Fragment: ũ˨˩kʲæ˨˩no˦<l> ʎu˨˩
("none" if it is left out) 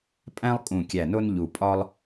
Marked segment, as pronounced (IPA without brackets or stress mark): n